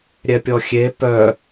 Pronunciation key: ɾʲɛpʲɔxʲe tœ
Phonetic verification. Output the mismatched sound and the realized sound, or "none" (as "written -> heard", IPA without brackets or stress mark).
t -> p